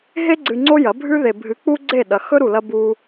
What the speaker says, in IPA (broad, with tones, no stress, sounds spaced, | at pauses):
ɦ e˦ ɡ͡ǀ ɨ˧ ŋ͡ǀ o˦ j ɐ˨˦ bʱ ʉ˧ ð e˨ bʱ ɨ˨˦ k͡p u˦ ɡ͡ǀ e˦˨ ɗ ɐ˨ x ɵ˦ ɾ u˨ l ɐ˧ b u˧